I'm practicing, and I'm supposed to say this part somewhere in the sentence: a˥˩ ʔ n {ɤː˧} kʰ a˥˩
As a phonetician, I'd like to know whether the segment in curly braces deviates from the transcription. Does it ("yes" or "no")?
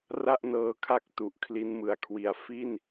no